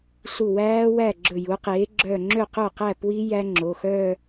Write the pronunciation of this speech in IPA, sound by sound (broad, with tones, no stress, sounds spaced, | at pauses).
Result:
ɬ u˧˩ w æː˦˥ w æ˥˩ ɡ͡ǁ ɵ˧˩ j u˩˥ q eː˩˥ ɡ͡ǁ œ˧˩ ŋ͡ǁ ø˥˩ q œ˥˩ q æ˥˩ p w i˦˥ j æ˦˥ ŋ͡ǁ o˩˧˩ x œː˥˧